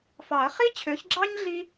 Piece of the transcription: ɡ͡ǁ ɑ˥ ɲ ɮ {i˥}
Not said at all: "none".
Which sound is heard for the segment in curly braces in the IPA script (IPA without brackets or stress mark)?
i˥